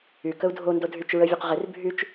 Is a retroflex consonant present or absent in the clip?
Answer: absent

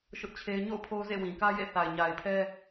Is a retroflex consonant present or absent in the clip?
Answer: absent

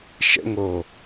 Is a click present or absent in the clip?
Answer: absent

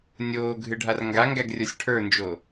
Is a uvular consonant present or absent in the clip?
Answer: absent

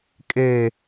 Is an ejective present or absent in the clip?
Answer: present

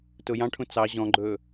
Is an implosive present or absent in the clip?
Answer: absent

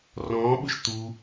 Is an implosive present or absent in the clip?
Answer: present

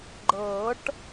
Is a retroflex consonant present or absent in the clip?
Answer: present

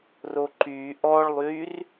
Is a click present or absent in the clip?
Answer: present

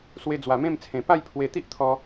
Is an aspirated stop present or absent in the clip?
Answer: present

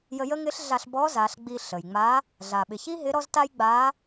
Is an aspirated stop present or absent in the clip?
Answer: absent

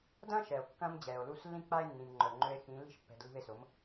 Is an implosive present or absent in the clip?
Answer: absent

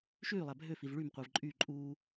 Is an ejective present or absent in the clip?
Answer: present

